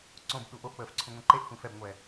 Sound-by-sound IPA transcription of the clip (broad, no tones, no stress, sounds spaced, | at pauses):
ǀ õ b ɗ u ʔ o ʔ k͡p əː f ǀʰ ũ ŋʷ ẽ ǃ e ʔ xʷ ẽ f ɛ b ŋʷ ɛ